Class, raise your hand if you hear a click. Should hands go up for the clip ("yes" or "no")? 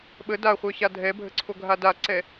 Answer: yes